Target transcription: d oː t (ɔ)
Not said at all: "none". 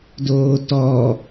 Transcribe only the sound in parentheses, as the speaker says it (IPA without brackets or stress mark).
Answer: ɔ